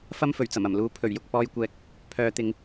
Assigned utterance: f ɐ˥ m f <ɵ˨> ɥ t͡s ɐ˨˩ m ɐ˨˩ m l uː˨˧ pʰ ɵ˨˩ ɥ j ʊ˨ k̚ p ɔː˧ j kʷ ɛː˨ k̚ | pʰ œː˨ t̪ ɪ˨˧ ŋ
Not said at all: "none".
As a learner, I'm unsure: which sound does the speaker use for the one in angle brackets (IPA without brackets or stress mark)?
ɵ˨˩